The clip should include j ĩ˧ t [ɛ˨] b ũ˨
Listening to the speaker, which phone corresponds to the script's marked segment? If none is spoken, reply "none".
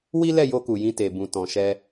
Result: e˨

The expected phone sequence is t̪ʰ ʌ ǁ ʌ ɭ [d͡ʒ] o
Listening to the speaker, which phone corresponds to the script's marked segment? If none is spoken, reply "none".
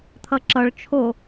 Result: t͡ʃʰ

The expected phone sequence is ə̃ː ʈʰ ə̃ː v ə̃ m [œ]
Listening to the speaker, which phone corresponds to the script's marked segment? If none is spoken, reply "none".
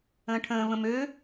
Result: ø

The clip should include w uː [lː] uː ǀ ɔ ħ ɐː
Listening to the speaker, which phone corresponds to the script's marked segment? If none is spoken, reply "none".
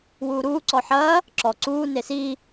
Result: ɾ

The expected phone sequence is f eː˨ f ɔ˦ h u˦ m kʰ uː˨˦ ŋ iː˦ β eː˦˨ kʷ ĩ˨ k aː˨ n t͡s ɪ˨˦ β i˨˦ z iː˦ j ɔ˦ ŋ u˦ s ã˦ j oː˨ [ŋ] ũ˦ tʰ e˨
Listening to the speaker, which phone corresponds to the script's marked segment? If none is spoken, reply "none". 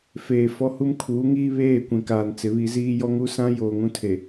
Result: ŋ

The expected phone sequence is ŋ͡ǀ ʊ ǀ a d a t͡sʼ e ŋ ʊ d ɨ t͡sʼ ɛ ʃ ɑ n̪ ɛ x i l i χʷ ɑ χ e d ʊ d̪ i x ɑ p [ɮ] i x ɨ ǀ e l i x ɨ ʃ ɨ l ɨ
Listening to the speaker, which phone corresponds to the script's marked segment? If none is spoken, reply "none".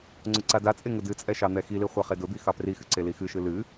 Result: r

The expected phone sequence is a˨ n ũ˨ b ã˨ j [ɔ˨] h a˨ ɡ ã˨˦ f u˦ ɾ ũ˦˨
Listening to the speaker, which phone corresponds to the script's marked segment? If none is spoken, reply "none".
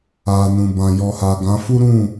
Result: ɔ˨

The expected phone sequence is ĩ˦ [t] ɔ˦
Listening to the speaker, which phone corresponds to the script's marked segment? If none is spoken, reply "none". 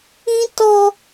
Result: t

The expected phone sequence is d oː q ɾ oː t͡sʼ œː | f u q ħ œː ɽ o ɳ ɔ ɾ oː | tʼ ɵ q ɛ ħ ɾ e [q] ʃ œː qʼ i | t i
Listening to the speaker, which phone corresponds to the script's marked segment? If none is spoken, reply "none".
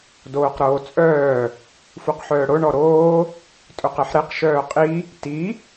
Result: q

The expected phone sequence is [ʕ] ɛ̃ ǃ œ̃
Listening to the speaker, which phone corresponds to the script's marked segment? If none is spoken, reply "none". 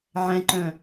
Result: ʕ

